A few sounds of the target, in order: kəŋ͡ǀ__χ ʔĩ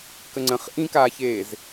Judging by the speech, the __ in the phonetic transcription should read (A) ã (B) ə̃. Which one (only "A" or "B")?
B